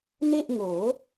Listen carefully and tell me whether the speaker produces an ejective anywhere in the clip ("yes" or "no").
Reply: no